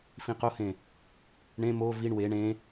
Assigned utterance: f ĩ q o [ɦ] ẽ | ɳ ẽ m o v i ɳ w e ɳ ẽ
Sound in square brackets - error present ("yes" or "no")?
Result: yes